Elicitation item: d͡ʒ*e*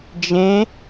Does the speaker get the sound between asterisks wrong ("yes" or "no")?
yes